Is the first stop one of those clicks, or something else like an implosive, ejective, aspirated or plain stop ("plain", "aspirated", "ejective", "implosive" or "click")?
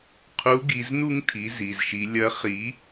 aspirated